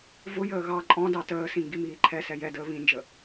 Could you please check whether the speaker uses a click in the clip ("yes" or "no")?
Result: yes